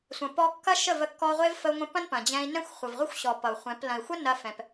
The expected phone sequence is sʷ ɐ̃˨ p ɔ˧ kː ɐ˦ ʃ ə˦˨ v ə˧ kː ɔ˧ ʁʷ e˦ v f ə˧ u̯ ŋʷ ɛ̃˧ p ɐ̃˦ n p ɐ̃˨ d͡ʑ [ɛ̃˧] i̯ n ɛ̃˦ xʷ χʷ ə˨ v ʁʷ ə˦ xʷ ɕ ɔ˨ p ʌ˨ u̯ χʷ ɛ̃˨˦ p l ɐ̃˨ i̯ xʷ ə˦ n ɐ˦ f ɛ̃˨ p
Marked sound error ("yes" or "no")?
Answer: no